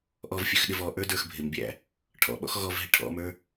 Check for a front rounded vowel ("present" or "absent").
present